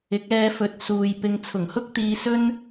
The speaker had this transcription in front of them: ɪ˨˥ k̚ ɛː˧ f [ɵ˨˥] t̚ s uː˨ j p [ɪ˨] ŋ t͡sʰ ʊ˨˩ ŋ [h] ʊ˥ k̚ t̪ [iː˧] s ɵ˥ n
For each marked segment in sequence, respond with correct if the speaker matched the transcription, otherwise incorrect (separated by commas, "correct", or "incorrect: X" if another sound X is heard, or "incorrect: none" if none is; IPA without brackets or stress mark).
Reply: correct, incorrect: ɪ˧, correct, correct